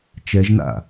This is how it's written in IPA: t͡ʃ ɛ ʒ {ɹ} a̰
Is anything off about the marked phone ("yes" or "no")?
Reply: yes